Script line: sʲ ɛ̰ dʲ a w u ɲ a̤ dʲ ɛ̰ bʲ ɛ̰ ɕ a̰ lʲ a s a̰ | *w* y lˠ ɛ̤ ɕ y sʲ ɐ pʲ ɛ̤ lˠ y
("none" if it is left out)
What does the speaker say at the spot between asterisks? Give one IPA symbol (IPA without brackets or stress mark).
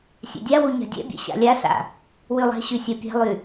w